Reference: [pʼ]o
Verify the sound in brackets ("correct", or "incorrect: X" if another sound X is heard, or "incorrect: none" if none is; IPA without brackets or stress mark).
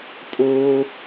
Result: correct